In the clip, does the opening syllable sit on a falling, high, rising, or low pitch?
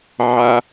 low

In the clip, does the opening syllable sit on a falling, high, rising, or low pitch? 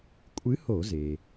rising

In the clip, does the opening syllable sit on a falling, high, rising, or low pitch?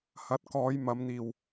rising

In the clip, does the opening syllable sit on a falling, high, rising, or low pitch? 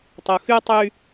low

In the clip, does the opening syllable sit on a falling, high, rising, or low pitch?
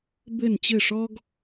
falling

